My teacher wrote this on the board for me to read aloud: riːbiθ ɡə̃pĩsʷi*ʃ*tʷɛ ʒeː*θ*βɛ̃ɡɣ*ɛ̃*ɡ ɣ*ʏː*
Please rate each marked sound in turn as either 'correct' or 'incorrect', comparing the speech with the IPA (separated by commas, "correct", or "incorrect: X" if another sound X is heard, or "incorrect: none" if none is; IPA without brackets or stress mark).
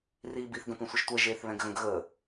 correct, correct, incorrect: ə̃, incorrect: əː